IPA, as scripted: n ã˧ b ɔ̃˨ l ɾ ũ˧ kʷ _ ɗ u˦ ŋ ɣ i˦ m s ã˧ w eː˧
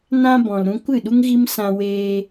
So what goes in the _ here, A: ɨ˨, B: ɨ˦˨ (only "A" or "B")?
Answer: B